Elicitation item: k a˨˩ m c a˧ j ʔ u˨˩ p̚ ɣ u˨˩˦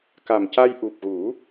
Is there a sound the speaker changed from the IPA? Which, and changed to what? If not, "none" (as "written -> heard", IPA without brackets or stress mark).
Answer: none